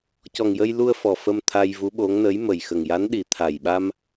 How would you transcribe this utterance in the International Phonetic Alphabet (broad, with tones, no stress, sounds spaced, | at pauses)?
c ɔ˨˩ ŋ j ə˧ j l u˧ ə̯ f ɔ˨˩ f ə˧ m t̪ʰ a˧ j v u˧˥ ɓ o˧˥ ŋ n ə˧˥ j m ə˨˩ j x ə˨˩ ŋ j a˧˥ n ɗ i˨˩ t̪ʰ a˨˩ j ɓ a˧ m